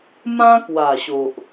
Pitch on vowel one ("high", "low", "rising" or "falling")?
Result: high